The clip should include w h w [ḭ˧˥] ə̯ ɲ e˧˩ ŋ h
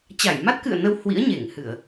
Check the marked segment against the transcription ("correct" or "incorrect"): correct